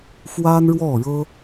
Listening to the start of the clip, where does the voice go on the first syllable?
high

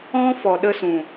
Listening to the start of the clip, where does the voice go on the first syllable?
high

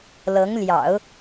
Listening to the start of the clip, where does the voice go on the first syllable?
rising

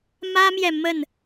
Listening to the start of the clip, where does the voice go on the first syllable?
high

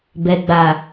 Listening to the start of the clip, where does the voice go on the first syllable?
low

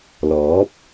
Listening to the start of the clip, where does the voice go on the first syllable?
rising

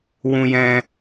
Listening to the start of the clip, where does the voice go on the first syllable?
high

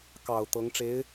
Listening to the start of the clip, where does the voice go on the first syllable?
low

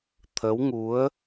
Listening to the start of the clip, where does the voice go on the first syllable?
rising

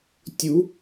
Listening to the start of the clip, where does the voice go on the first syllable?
rising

